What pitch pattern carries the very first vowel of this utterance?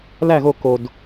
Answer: falling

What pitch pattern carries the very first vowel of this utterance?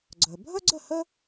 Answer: low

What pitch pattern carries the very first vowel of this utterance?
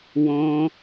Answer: high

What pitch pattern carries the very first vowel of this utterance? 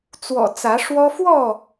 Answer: low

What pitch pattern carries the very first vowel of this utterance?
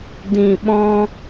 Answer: low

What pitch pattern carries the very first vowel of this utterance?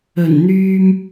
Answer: low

